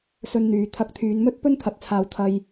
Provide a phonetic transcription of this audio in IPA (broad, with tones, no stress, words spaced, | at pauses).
sɵ˧nn̪yː˨˧ t̪ʰɐ˨k̚t̪ʰyː˨˧nmɵ˥t̚ pɵ˥nt̪ʰɐ˨˥t̚t͡sʰaː˨w t̪ʰɐ˧j